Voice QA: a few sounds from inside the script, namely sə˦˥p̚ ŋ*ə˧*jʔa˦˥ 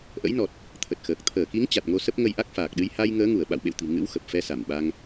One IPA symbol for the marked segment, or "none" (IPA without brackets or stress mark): ə˧